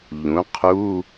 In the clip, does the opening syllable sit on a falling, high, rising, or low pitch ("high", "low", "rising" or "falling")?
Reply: rising